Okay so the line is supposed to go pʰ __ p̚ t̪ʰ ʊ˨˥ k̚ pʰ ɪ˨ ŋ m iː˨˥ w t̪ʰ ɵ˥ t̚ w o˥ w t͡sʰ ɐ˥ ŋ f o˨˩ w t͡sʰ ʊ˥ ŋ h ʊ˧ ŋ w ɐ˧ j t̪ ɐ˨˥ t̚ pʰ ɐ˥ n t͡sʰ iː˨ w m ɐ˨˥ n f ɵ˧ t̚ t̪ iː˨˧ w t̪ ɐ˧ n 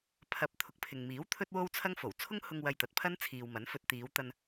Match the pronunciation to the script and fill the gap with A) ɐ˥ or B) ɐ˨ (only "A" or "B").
B